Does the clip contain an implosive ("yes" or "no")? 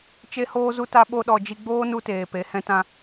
yes